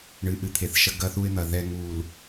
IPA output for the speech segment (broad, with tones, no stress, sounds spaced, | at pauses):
ɳ ɨ˨˦ ʔ ɨ˨ t̪ʰ e˨˦ θ ʃ ɐ˦ ɡ ɐ˦˨ θ u˦ ɪ̯ n̪ ɐ˨ ð ɛ˦ ŋ u˨ l